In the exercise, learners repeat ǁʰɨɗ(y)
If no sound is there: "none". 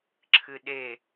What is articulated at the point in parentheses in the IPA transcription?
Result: e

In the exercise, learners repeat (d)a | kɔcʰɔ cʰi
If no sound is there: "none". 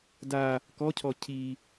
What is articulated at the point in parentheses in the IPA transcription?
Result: d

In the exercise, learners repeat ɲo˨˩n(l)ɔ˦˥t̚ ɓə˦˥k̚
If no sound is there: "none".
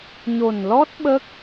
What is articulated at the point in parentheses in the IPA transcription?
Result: l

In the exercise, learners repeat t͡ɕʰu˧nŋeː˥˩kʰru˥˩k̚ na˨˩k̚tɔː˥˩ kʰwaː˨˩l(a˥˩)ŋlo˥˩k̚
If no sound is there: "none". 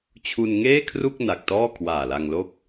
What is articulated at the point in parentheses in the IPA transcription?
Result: a˧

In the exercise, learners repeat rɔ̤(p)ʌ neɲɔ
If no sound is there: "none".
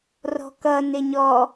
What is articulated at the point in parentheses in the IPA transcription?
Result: k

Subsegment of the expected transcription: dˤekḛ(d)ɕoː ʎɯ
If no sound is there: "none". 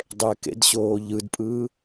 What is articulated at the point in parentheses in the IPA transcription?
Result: d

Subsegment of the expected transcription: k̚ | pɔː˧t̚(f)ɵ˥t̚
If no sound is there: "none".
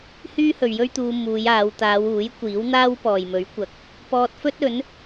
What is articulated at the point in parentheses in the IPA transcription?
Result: f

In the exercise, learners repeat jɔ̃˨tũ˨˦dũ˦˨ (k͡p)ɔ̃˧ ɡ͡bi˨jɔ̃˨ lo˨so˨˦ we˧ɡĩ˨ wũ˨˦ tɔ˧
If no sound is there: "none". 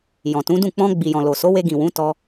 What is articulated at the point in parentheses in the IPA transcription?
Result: k͡p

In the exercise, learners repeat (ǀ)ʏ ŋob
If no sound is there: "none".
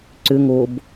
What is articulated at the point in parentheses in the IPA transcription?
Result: ǀ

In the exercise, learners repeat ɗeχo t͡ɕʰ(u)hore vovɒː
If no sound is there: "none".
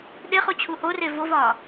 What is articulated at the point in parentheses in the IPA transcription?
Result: u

